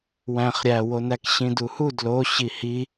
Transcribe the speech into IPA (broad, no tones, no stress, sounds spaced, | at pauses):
w æ̃ χ ɾʲ æ w o n æ k ɕ ĩ d u h u d l o ɕ i h i